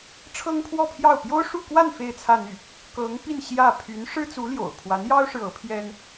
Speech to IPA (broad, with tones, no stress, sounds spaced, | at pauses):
ʈ͡ʂʰ ɤ˥ ŋ pʰ w ɔ˥˧ pʰ j ɑ˥˩ ʊ̯ p j o˥ ʊ̯ ʂ u˥˧ k w a˥˧ n f e˥˧ ɪ̯ t͡sʰ ä˥˧ n̪ y˥˩ | k ɤ˧˥ ŋ p i˥˧ n ɕ j ä˥˩ pʰ y˧˥ n ʂ ɻ̩˥ t͡s u˧˥ l j o̰˨˩ ʊ̯ pʰ w a˧˥ n j ɑ˥ ʊ̯ ʂ ɻ̩˨ ɤ˧˥ pʰ j ɛ˥ n